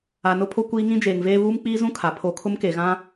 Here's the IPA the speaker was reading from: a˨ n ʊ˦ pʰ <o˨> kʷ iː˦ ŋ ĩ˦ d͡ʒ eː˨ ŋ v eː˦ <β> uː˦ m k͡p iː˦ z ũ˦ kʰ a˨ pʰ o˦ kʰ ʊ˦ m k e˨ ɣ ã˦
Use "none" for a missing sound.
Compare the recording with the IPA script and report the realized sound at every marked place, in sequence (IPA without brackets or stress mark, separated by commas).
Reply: o˦, β